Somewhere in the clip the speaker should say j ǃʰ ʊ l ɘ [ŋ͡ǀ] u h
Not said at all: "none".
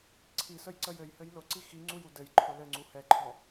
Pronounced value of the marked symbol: ŋ͡ǀ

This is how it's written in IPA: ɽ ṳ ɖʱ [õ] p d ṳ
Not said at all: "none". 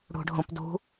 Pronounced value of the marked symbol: õ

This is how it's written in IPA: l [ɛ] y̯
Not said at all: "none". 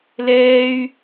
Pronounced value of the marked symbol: ɛː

